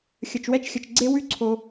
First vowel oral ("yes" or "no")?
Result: yes